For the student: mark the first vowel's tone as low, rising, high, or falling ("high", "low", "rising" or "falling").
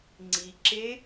low